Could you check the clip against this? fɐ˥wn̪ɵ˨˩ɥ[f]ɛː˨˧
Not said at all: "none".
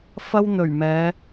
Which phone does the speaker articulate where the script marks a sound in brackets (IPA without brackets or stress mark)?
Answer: m